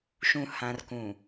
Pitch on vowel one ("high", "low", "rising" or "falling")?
low